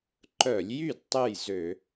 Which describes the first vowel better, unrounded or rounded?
rounded